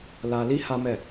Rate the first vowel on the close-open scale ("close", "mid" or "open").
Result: open